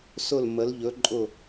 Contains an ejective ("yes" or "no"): yes